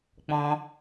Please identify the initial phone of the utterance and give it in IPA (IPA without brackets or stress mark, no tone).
k͡p